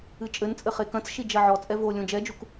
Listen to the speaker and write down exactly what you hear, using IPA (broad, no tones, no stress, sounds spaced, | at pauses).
ɨ t͡ʃʼ ɘ n t͡sʼ ɘ χ e k ɐ̃ t͡s ʃ i d͡ʒ ɐ ʕ ɔ t͡sʼ ɛ v o lʲ õ d͡ʒ ɛ d͡ʒ u k